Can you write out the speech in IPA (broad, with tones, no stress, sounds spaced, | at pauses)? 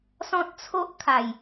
s ɔ̃˦ t̚ t͡sʰ o˦ ʔ kʰ a˨˩ j